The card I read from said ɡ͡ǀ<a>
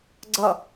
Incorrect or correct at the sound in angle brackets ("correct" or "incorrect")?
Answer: incorrect